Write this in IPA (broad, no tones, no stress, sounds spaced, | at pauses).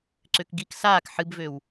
ǀ ø k ɡ i k s aː k ħ ɨ b v ø w